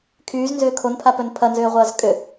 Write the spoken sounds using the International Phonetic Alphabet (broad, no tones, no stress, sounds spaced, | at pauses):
kʰ yː z n z ʏː kʰ o n pʰ a p œ n pʰ ɐ n z ʏː ʁʷ ɐː z kʼ ʏ